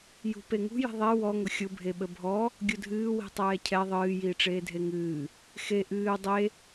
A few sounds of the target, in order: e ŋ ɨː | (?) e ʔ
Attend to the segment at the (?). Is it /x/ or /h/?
x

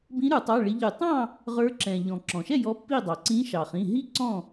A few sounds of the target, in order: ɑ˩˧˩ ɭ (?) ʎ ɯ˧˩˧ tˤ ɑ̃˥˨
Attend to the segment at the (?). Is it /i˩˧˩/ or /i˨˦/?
i˨˦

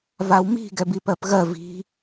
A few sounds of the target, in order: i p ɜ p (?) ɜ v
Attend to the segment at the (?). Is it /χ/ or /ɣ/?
ɣ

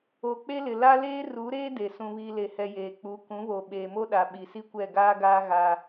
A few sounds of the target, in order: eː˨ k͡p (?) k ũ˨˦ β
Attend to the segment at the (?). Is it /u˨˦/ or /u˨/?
u˨˦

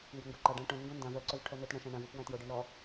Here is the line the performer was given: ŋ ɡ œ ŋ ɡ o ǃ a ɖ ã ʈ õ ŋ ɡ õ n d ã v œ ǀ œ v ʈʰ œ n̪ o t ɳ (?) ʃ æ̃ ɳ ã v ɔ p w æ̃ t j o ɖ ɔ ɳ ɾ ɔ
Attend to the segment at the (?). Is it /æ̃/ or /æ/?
æ̃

